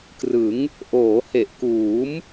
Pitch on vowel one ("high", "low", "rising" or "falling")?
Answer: rising